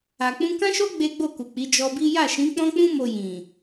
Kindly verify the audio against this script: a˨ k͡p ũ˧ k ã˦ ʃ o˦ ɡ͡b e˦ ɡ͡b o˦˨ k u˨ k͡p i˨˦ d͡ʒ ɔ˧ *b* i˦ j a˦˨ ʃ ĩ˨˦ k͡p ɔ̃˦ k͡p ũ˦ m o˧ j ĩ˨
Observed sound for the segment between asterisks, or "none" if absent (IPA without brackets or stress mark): b